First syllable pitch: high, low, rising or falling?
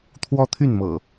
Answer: high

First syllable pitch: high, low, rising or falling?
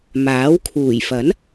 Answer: rising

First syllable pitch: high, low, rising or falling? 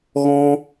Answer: high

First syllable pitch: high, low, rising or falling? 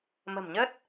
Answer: low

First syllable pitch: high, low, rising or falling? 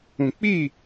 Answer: low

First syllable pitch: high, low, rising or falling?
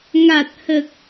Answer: low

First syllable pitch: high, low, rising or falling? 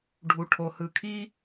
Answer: low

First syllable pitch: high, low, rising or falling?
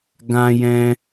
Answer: high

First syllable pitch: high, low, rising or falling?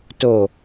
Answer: low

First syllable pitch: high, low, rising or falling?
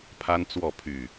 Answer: high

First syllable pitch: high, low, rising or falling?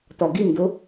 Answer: low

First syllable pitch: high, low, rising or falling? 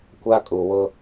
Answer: high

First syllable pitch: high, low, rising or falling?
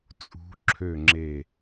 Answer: rising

